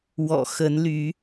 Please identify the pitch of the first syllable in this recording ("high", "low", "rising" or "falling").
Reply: low